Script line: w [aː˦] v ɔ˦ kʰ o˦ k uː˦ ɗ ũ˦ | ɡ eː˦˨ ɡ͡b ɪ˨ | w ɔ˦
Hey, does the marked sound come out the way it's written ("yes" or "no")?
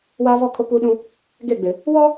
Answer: yes